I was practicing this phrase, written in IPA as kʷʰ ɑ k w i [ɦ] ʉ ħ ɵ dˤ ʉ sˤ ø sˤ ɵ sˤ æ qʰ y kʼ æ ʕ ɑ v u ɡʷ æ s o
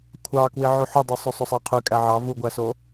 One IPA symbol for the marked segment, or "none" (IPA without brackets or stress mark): ʕ